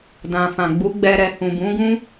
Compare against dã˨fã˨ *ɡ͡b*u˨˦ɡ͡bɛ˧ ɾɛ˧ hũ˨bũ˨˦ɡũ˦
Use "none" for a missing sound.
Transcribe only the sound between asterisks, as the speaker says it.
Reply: ɡ͡b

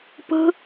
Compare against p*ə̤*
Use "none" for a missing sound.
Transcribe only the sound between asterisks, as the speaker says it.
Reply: ə̤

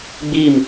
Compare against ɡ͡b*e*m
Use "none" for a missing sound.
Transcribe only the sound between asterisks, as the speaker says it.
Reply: i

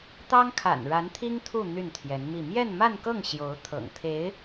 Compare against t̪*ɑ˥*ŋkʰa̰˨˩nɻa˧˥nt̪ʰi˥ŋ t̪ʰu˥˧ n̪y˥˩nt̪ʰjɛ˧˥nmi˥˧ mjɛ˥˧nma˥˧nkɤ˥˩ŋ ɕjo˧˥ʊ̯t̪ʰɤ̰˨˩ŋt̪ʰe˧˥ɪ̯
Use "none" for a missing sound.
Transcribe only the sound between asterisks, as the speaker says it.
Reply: ɑ˥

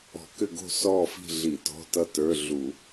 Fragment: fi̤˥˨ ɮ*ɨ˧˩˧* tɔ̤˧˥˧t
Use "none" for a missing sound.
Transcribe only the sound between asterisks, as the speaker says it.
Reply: i˧˩˧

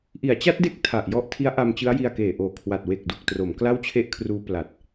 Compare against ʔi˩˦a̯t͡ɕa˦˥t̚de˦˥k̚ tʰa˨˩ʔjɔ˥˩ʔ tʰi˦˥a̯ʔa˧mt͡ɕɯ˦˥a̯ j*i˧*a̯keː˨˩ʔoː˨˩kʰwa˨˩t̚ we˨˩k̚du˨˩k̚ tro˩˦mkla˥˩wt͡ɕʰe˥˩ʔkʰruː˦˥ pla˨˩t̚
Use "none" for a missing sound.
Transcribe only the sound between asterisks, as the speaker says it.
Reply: i˧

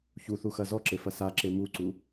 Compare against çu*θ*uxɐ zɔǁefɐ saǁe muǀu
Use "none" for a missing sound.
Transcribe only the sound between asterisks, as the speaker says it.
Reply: θ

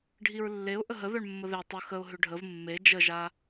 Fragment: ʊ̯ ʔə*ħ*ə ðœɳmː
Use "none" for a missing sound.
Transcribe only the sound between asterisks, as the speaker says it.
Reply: ɦ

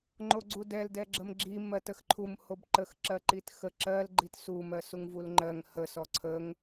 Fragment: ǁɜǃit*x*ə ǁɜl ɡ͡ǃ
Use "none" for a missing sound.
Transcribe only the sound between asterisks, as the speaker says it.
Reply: x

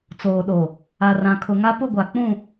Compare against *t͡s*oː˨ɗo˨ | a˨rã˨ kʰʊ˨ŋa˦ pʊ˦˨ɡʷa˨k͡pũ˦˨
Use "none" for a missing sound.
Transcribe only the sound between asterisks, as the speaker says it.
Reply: t͡s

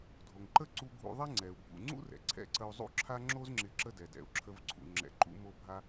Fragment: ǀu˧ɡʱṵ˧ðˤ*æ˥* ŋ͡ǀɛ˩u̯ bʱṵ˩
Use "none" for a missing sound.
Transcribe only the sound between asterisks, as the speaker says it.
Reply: ɛ˥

